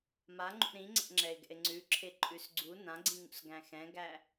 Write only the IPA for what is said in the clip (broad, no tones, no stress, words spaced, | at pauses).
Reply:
maŋ͡ǃṵ ɾĩŋ͡ǀɛ̰ŋ͡ǁɛɪ̯ɡɛ̰ɪ̯ ŋ͡ǀʉǁʰeǃʼʉs ɡ͡ǀu nãɡ͡ǀĩŋṵsɡæ̃ xɛ̃ɡæ